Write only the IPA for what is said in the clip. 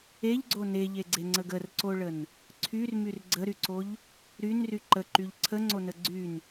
eʎɡ͡ǀo neʎeɡ͡ǀeŋ͡ǀəɡ ərǀoɭən | ǀʰyrmyr ɡ͡ǀəɾyǀoʎ | ɾynry ǃəǃyʎ ǀʰəŋ͡ǀonə ɡ͡ǀyn

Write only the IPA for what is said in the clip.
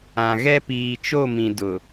ã˨ɣɛ˦ piː˨t͡ʃo˦˨mĩ˨ dʊ˨

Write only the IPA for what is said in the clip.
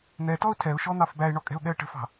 n̪ɛtɔʊ̯ tʰɛʊ̯ʃɔn̪ɑf bæɪ̯ɳɔkʼɛ̤ʊ̯ɠɛə̯ ʈə̤fɑ̤

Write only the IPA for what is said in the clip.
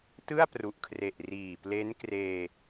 tɯ˥˩a̯pru˨˩ʔkʰre˨˩ʔ riː˨˩ple˦˥n kreː˧

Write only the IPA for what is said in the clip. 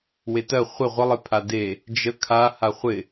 wetɜ χʷɪ ʁʷə lˠɪpʰade | d͡ʒə kʰa haχʷɪ

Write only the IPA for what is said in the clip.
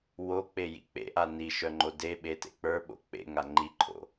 wok͡pejḭ k͡pḛʔa niʃœŋ͡ǃo deɓetḛ k͡pə˞ɓo̰ k͡pḛŋa ŋ͡ǃiǃʰo̰

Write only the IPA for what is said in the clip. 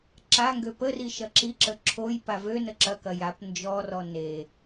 ǁaŋɡø pəri ʃɐǁiǁə ǁʰojpa vø nəǁɐkɐ jap nd͡ʒɔrɔ ne

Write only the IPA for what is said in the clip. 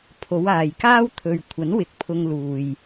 pʰo˨˧w aː˨jkaː˥w t̪ʰɵ˨ɥ kʷʰɐ˨˥nwɪ˨˥k̚ pʰʊ˧ŋ luː˨j

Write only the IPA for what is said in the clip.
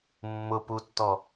mːʊputːɔ

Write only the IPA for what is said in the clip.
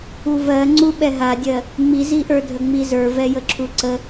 uvɜ ŋ͡ǀuɓɛɦadʲɜ | ŋ͡miziʔə˞dʱə ŋ͡mizə˞vɛjə ǁʰuǀə

